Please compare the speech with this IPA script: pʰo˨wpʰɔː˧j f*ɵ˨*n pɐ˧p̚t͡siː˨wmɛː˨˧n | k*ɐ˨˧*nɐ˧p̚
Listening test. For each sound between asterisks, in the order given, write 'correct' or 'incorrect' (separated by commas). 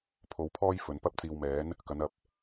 correct, correct